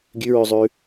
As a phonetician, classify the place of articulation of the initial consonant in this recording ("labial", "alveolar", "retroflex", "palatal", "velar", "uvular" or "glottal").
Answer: velar